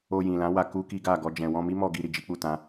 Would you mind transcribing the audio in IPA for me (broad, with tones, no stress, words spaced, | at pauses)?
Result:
o˧jĩ˨lã˨˦ wa˧ ku˦ki˦ɡa˦˨ ɡɔ˧d͡ʒɛ̃˨ wɔ̃˧mi˦mɔ˧ ɡi˧ ɾi˨d͡ʒi˨˦k͡pu˦˨ tã˨˦